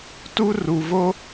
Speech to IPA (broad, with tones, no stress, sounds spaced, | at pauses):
t u˥ r u˩ v o˥